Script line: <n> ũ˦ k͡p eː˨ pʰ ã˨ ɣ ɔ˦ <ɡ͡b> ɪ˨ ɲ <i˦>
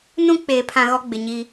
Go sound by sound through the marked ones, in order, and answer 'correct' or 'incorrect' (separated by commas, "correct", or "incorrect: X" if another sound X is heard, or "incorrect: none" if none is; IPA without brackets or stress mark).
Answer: correct, correct, correct